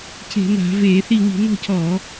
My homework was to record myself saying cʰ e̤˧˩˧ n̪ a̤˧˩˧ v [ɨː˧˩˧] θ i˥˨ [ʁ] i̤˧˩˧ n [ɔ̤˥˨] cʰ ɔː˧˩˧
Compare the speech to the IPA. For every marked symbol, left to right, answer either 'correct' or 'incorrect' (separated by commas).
incorrect, incorrect, correct